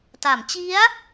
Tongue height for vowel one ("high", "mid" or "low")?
low